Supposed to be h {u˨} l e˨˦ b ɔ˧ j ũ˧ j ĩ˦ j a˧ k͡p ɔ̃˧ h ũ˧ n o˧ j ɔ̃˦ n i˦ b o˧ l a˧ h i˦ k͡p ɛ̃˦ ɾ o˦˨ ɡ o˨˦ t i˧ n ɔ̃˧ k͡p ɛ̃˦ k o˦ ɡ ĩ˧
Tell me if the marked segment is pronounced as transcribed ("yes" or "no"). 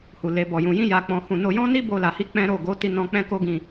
yes